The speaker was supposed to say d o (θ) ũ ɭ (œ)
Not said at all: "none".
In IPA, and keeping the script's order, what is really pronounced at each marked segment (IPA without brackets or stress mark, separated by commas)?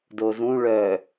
z, œ